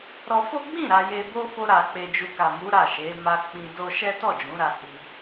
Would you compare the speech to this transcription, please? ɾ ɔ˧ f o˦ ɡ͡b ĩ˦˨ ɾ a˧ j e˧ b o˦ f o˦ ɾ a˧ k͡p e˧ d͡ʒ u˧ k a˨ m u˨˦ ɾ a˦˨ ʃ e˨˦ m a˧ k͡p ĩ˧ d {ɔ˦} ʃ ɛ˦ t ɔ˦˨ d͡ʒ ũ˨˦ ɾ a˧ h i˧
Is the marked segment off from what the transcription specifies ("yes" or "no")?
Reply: yes